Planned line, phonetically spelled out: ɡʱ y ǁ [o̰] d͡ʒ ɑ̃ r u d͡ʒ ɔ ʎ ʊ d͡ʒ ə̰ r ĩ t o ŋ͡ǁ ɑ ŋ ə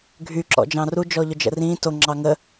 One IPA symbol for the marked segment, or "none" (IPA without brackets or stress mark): ɔ̰